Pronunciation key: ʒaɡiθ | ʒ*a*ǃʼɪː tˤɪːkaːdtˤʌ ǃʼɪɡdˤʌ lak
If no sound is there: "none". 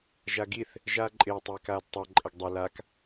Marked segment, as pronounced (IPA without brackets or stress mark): aː